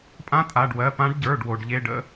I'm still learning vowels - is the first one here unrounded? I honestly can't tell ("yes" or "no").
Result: yes